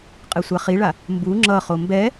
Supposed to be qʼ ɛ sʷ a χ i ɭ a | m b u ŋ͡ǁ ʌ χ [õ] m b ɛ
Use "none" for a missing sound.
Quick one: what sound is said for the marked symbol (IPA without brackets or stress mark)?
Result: o